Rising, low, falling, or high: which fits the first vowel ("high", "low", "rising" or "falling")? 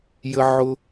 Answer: high